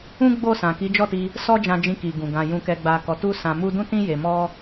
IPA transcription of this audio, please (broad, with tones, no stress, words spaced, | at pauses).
ũ˦ ɡ͡bo˦˨sã˨ ki˨˦d͡ʒɔ˦˨ti˧ | sɔ˦d͡ʒã˧d͡ʒĩ˧ki˨ ɡũ˨ɡã˧ jũ˧kɛ˧ɡ͡ba˧kɔ˧ tu˦sã˧mu˦ dũ˦tĩ˦ je˧ mɔ˦